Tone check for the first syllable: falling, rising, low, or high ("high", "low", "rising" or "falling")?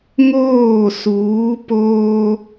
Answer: falling